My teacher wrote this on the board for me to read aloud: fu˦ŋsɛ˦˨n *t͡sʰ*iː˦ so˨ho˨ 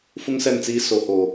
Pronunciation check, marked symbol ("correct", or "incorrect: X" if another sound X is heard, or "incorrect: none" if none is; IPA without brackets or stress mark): incorrect: t͡s